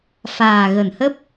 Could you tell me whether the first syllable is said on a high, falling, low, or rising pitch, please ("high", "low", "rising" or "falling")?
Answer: low